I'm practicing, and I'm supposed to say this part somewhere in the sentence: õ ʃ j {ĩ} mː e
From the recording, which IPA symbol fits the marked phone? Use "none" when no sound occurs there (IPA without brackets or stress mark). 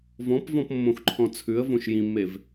ĩ